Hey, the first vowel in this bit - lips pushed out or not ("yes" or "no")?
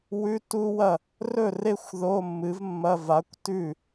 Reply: yes